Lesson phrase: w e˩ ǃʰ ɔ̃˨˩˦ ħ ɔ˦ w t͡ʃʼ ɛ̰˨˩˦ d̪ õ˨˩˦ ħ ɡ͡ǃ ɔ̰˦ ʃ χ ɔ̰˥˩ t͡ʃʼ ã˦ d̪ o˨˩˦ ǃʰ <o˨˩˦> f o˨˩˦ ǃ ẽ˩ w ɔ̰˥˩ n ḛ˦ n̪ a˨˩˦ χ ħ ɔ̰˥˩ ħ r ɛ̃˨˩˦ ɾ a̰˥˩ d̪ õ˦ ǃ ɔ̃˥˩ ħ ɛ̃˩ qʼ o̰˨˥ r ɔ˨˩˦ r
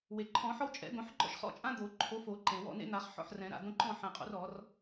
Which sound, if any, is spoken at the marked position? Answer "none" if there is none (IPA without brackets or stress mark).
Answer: o˨˥